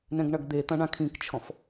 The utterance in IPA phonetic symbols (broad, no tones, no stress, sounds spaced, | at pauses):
n ɛ̃ ɡ ɳ ɐ ɡ d̪ e t̪ ɐ̃ ɳ ã kʰ ĩ k t͡ʃʰ ɔ̃ f